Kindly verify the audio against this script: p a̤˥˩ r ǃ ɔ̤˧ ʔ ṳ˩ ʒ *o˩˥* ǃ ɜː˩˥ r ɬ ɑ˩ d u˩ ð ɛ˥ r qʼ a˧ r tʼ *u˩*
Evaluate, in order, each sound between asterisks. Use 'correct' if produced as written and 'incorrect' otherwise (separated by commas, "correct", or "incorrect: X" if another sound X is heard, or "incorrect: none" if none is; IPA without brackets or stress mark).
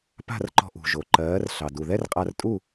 incorrect: o˩, incorrect: u˥˩